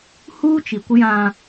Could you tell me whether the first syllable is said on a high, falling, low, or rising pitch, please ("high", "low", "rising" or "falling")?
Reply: high